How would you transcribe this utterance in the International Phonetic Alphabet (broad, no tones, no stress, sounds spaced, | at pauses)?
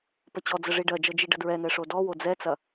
p ə t͡ɕ ɔ d͡z ə ʐ i ɖ ɜ d͡ʒ ɤ d͡ʒ i ɖ ə d ɹ ɛ n ɛ ʂ o d ɔ w o d͡z ɛ t͡s ɐ